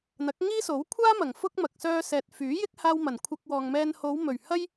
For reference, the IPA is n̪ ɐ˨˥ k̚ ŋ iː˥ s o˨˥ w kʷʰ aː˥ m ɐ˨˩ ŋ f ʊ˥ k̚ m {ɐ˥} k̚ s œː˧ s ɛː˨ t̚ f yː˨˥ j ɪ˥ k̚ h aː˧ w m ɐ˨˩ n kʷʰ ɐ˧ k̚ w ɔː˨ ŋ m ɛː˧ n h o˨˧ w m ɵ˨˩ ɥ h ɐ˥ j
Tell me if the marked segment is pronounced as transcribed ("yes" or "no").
no